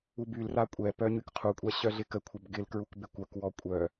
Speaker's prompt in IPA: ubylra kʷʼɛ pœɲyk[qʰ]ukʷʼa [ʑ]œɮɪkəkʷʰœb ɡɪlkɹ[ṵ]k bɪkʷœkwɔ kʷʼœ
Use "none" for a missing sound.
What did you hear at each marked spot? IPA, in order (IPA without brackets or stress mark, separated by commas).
qʰ, ɕ, u